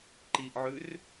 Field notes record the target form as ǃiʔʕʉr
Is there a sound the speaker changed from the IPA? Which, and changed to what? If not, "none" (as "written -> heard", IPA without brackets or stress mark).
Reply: none